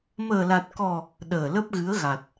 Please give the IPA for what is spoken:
məː˨˩la˨˩t̚kɔ˨˩ | ɗəː˨˩lə˦˥p̚ɣɨ˨˦ə̯ɣa˨˩t̚

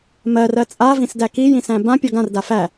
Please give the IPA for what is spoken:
mɜ rɜt͡sʼa vĩsdæki jĩsæ̃bã pʲɔɡãr dafæ

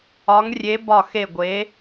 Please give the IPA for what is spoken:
ɒ˨˦ŋrʲe˨˦ bɒ˧˩xe˧˩ ɡʷe˨˦

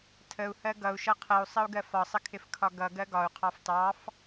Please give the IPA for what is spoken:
tʰəu̯hɜ ɡʌu̯ʃʌ qʰəu̯sˤəu̯ɡɜ fɒsˤəkʰɪfkʰɒ ɡʌɡɜ ɡɒu̯qʰɑf tɑf

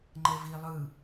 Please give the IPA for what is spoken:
ŋ͡ǃɛvi lˠɯ

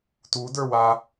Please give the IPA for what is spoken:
tudə˞wa

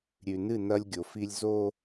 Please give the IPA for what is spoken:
ɾʲʉ˨nɨ˦˨ nɐ˦lʲɡʲo˨fi˦lʲ zo˦

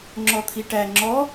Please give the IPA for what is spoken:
ŋ͡ǁɔt̪ʰiʈæ ŋ͡ǁɔ

